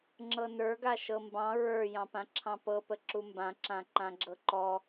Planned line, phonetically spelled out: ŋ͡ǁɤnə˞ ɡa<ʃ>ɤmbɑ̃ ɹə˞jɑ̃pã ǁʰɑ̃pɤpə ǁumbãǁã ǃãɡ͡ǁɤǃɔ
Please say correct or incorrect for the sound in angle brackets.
correct